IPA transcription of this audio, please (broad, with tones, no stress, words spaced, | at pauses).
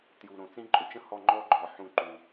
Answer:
tju˨ɾõ˨ t͡sĩ˦ǃʼʊ˧t͡ʃə̃˦hɔ˦˨ ŋ͡ǃɔ˦ɡ͡ǃɔ˨ ħũ˧ǃu˨